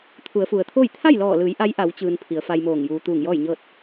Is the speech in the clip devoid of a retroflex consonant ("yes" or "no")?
yes